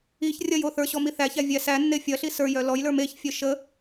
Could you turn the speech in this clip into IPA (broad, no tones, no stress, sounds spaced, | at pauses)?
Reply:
i ç rʲ ɐ j o θ ə˞ ɕ ɔ m i θ æ ç æ vʲ æ s æ nː e fʲ ɐ ɬ i s ə˞ j œ l ɔ j l ə˞ m e ç fʲ œ ʃ ə